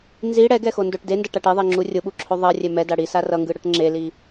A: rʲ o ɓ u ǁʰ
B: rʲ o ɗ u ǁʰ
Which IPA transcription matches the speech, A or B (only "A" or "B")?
A